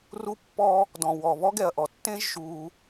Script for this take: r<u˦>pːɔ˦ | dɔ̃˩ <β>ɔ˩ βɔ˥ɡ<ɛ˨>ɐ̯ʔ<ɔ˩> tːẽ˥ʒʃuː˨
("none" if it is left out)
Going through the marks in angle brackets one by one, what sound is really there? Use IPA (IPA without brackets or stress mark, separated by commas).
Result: u˦, w, ɛ˨, ɔ˩